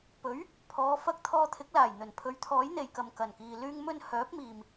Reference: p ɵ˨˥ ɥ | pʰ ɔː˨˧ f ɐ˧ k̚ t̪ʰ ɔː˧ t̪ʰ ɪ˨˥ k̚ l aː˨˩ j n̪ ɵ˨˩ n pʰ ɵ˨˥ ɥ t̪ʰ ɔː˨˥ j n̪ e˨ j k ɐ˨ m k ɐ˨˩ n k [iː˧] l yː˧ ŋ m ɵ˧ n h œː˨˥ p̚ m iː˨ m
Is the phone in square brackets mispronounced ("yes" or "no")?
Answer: yes